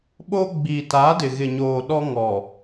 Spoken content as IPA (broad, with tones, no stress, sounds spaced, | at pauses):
ɓ oː˦ ɡ͡b iː˨ t aː˨˦ d ɪ˨ ɣ ɪ˨ ɲ oː˨ ɗ ɔ˦ ŋ ɔ˨